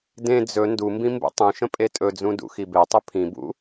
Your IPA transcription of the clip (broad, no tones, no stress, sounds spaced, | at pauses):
d ẽ d͡z ɵ n d u m b ĩ m b ṵ tˤ ũ ʃ ə̃ pʼ e tʼ ɵ d͡z ũ d ṵ x i b e tˤ ɵ pʰ ĩ b ṵ